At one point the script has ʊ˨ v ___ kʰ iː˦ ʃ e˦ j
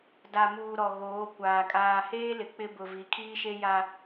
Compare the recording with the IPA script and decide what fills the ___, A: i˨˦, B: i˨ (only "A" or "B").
A